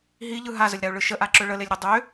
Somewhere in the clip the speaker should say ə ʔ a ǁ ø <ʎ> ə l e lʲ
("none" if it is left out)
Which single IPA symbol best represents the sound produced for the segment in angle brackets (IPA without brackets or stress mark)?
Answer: ɭ